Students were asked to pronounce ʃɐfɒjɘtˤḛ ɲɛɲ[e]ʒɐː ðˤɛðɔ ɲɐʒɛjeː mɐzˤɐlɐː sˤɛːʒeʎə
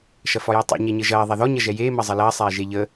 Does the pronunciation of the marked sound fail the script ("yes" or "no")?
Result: yes